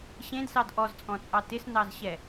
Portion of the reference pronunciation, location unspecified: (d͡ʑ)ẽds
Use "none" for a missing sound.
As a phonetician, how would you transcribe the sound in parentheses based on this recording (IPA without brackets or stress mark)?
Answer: ɕ